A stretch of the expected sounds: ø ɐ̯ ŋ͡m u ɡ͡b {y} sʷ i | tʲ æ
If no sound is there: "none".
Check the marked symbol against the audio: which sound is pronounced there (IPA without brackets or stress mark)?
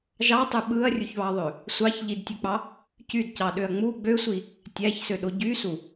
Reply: ø